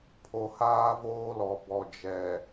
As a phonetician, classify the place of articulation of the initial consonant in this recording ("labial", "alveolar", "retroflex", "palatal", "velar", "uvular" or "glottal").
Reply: labial